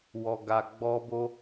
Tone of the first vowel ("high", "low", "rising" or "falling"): low